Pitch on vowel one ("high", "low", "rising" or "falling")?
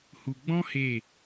low